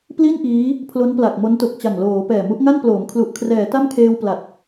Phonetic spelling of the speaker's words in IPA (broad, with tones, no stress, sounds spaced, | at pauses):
p l i˥˩ n ʔ iː˦˥ | pʰ l o˦˥ n p l a˨˩ k̚ m o˦˥ n t o˨˩ k̚ t͡ɕ a˨˩ ŋ l oː˩˦ p ɛː˨˩ m u˦˥ ʔ ŋ a˥˩ n p l oː˩˦ m kʰ l u˨˩ ʔ kʰ r ɛː˩˦ t a˥˩ m kʰ eː˧ w p l a˨˩ t̚